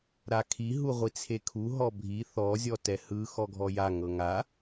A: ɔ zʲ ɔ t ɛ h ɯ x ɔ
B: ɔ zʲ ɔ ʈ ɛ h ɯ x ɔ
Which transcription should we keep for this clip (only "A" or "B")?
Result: A